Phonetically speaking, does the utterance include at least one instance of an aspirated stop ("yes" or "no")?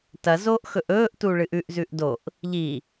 no